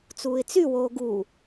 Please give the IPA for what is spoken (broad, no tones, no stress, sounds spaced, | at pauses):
t͡s uː ɪ̯ t͡s y w oː ɡ u